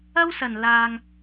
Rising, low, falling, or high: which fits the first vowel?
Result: high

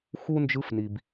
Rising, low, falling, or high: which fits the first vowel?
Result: high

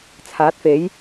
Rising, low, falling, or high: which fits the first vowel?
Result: rising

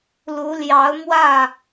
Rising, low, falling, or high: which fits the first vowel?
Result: rising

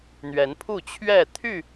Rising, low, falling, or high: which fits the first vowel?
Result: rising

